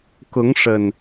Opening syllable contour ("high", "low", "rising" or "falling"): rising